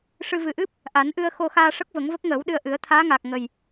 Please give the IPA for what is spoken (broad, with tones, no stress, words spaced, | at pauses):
ʂɨ˧ vɨ˨˩ʔɨ˦˥p̚ | ʔa˨˩˦nʔɨ˧ə̯ xo˧xaː˧ʂə˦˥k̚ və˨˩˦ŋvə˦˥k̚ŋəː˨˩˦wɗɨ˧ə̯ ʔɨ˨˩˦ə̯t̪ʰaː˧˥ŋaː˨˩k̚ ŋə˨˩j